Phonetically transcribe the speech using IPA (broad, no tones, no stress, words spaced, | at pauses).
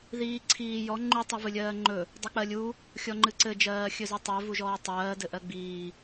ðiː ǀʰiː jɔ ŋ͡ǃu tˤivɨlʲɜːŋ͡ǃɵ | dˤɵk͡pɜlʲu | xʲɔŋ͡ǃɨǀɘ d͡ʒɜːxʲɵzɨtˤɜ vuʒɔːtˤɜː dɘʔɜɡ͡biː